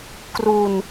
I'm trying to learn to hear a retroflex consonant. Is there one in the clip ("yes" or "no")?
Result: no